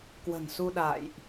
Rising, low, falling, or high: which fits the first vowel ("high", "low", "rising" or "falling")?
low